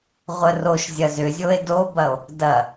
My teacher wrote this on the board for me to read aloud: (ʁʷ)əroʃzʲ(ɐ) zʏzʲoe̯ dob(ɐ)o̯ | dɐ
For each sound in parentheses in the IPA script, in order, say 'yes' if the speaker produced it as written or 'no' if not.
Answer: yes, yes, yes

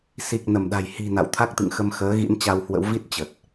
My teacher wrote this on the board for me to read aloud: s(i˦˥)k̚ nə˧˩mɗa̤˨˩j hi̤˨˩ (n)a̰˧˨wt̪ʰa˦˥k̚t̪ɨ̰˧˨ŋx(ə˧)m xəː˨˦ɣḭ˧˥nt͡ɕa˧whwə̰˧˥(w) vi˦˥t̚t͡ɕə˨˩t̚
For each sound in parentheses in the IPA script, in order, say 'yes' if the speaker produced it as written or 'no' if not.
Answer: no, yes, yes, yes

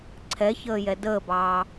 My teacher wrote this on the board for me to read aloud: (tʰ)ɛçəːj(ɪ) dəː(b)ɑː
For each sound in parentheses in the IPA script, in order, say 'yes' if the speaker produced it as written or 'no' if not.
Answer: no, no, yes

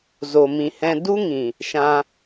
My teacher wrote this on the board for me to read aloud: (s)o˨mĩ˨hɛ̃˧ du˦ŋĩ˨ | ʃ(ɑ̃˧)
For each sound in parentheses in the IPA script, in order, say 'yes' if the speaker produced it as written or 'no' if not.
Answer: no, no

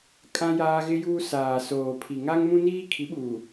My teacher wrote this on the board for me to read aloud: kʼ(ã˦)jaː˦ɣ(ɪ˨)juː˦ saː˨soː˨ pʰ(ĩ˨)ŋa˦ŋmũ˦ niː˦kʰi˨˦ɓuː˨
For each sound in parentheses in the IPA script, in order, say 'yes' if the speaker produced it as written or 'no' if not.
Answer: yes, no, no

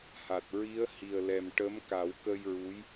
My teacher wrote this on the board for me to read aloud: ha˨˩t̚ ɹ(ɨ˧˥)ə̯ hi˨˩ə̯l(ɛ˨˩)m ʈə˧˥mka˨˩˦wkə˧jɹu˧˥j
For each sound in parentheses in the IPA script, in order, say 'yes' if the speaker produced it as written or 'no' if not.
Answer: no, yes

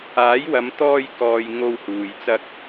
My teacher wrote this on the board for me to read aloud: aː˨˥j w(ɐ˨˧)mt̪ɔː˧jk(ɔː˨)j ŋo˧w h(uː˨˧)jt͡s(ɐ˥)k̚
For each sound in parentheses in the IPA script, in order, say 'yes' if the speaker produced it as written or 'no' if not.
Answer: yes, yes, no, no

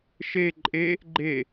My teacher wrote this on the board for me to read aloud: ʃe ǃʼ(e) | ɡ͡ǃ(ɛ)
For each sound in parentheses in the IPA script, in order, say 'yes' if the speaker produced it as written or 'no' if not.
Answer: yes, no

